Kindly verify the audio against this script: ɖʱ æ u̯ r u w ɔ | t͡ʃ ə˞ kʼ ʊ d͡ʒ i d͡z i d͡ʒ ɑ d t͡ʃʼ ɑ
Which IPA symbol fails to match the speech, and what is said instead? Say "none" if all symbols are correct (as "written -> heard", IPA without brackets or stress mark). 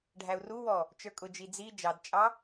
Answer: none